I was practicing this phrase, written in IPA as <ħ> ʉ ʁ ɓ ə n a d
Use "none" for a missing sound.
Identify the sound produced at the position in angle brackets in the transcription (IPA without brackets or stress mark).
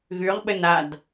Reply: ɣ